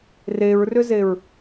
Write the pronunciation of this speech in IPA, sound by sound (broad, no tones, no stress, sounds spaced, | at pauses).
r e ɹ r ʏ z e ɹ